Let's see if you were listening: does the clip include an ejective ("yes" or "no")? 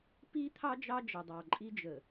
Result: yes